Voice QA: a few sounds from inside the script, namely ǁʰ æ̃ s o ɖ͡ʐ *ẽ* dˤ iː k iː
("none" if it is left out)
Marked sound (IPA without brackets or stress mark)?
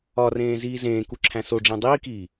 ẽ